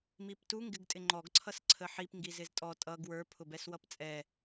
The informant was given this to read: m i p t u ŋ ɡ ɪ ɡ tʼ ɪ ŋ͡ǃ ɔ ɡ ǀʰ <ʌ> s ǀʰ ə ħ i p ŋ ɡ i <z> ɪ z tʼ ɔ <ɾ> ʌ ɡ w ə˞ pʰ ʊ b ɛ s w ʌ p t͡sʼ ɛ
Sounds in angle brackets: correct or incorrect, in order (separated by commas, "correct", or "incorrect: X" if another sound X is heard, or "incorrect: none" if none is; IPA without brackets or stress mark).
correct, correct, incorrect: tʼ